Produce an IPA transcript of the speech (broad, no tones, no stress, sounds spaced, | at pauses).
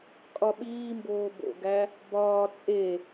kʼ ɒ ɓ iː m b oː b o̰ ɡ æ | b ɒː t͡sʼ e